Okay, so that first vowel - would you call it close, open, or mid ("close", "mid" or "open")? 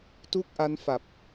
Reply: close